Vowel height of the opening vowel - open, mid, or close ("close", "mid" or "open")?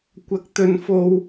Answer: open